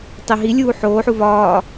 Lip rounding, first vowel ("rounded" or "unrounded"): unrounded